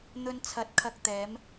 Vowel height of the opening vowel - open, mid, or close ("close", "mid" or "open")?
mid